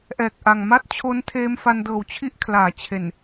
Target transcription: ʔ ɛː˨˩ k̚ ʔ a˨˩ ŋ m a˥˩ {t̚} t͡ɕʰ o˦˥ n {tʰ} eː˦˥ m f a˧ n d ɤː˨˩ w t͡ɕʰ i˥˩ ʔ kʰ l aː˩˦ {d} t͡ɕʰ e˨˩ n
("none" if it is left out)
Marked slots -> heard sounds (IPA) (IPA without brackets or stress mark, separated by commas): t̚, tʰ, none